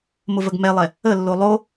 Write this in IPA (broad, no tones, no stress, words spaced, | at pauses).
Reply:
mʊvəɡmɛlˠɛ | əlːo lˠo